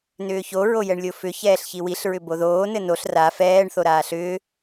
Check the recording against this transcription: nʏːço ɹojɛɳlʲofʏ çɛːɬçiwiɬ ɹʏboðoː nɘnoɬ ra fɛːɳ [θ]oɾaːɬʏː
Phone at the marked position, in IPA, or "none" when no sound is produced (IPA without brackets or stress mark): θ